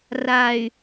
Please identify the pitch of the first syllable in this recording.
low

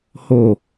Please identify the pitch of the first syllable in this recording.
low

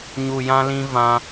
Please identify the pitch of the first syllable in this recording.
low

